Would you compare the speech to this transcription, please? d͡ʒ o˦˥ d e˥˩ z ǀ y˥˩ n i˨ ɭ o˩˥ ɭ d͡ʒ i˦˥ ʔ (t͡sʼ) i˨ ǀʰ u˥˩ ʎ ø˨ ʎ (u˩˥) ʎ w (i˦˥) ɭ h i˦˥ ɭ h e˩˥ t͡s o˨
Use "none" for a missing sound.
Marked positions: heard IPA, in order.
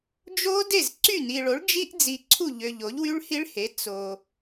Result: d͡z, o˩˥, y˦˥

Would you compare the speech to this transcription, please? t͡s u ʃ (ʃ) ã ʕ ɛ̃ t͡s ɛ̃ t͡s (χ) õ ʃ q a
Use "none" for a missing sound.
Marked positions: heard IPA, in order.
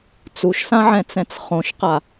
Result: s, χ

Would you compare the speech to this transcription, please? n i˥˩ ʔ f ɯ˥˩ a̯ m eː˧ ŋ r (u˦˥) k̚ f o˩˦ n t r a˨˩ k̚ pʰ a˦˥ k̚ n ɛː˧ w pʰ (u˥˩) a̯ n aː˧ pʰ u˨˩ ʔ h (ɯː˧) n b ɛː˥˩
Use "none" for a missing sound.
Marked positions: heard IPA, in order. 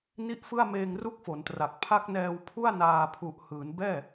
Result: u˦˥, u˥˩, ɯː˩˦

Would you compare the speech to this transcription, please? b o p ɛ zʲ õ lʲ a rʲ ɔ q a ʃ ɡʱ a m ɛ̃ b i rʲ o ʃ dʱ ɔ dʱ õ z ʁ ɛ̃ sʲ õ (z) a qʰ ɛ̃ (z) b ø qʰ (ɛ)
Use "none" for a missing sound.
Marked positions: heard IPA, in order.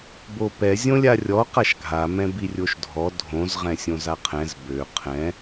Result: z, z, ɛ̃

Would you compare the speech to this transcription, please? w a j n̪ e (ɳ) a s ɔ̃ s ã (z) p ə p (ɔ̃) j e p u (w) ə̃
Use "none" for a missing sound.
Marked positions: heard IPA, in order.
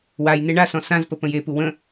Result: ɳ, z, ə̃, w

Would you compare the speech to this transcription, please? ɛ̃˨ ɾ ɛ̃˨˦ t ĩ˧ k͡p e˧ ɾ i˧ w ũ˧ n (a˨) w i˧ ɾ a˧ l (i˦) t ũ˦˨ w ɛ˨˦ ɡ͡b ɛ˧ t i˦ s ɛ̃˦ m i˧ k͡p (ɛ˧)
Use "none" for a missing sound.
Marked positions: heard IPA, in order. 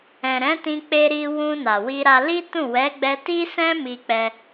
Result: a˨, i˦, ɛ˧

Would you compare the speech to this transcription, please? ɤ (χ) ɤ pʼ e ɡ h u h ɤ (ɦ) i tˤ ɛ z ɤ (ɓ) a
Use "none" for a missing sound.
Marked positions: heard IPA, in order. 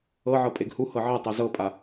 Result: ʕ, ʕ, pʼ

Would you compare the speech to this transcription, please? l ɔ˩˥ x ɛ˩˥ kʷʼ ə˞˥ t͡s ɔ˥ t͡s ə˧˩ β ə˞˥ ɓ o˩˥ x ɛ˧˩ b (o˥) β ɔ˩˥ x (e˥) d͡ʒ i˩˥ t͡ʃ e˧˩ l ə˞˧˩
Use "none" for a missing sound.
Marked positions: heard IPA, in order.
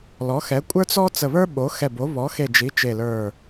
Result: o˩˥, e˧˩

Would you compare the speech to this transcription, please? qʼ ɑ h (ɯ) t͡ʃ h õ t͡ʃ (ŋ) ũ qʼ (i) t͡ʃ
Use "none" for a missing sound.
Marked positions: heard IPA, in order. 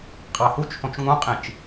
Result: u, ŋ, ĩ

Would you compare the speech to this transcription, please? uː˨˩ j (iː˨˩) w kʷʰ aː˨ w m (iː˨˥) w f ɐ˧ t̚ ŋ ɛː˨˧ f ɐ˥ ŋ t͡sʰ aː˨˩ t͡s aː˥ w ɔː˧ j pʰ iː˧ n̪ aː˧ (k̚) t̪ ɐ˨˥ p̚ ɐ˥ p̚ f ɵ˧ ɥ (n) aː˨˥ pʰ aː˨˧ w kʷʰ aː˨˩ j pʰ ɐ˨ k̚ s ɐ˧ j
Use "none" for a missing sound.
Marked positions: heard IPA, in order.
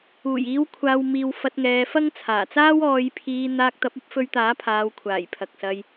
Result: iː˨˧, iː˨, k̚, t̪

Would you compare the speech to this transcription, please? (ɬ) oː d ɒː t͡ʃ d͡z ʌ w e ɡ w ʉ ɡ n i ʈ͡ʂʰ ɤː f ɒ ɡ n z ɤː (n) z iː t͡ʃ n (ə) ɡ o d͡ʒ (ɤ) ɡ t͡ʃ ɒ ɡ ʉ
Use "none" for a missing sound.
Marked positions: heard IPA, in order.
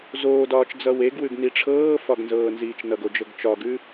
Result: z, n, ʌ, ɤ

